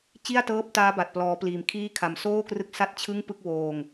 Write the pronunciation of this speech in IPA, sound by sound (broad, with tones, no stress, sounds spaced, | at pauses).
t͡ɕ i˥˩ a̯ t ɤː˦˥ p̚ t aː˦˥ b a˨˩ t̚ p l ɔː˦˥ p l iː˧ m kʰ iː˥˩ kʰ a˧ m s oː˥˩ k r ɯ˦˥ k̚ s a˥˩ t̚ t͡ɕʰ ɯ˥˩ ŋ p ɯ˥˩ k̚ w oː˧ ŋ